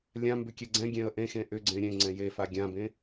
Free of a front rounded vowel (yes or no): no